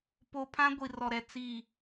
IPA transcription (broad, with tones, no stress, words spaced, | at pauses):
po˨pʰã˦ ɡʷi˨rɔ˨ɾɛ˨ t͡si˦˨